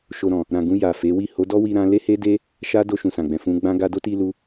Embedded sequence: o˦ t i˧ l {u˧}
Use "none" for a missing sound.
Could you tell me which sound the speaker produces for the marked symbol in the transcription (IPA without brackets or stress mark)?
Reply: u˧